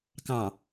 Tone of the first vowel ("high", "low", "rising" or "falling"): low